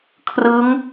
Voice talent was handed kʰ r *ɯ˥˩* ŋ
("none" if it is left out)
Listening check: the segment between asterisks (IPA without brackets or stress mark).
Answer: ɯ˦˥